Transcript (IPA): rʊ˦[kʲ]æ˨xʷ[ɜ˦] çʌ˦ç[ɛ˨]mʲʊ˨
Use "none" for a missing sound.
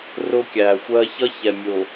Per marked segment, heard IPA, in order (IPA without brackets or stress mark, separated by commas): kʲ, ɜ˦, ɛ˨